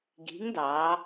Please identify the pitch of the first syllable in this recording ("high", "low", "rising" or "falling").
rising